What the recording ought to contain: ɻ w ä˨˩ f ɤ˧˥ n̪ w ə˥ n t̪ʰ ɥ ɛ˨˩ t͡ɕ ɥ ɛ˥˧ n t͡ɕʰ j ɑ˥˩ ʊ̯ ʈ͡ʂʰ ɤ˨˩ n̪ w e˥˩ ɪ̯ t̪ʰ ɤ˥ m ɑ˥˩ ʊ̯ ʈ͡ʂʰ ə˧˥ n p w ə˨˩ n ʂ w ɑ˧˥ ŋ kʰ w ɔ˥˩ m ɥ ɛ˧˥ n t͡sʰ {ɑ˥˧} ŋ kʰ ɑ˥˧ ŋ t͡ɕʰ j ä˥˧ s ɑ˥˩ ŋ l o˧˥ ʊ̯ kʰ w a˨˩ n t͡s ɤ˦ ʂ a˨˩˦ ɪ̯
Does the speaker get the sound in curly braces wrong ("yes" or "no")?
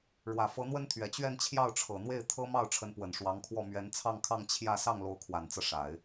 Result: no